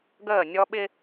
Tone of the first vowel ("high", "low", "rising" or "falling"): falling